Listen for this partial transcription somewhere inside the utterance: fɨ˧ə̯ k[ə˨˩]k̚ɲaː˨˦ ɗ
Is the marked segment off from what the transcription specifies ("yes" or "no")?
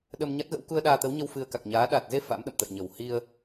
yes